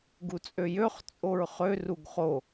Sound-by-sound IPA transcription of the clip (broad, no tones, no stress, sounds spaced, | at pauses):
ɡ u t͡sʼ ø j ø χ t͡sʼ o ɹ χ ø r u ɡ χ o